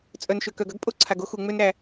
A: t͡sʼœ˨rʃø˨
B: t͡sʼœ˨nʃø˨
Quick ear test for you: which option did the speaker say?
B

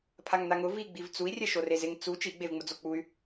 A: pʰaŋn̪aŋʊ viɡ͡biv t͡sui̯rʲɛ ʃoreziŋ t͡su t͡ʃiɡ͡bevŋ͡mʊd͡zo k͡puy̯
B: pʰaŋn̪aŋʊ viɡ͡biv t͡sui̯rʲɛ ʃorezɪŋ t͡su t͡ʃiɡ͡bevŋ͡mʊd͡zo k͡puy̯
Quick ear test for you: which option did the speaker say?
B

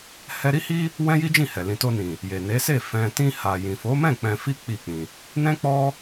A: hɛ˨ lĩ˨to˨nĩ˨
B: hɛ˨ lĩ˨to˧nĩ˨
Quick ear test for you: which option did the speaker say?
B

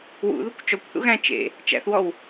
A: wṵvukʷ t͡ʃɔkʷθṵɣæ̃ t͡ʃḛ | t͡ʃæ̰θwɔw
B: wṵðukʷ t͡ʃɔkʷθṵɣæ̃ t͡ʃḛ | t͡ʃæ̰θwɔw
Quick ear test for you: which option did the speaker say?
B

